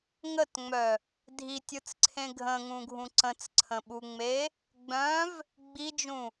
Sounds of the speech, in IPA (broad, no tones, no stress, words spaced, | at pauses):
ŋətŋ͡mœ | dʱitʲɯt͡sǀʰẽ ɡʱə̃ŋũɡʱũ ǀə̃t͡sǀʰə̃ɓuŋ͡me | ɡ͡bœ̃v | ɡ͡bid͡ʒũ